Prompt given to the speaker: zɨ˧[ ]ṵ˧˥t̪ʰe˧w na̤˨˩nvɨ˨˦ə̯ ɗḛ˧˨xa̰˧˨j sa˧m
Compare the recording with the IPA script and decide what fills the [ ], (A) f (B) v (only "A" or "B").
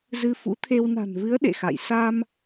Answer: A